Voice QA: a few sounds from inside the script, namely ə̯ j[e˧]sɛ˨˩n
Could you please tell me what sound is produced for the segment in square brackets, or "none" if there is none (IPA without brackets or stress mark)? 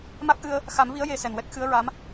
e˧